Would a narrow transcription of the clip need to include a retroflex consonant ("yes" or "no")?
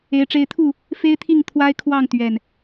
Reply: yes